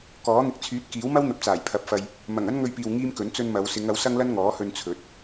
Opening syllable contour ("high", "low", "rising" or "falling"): rising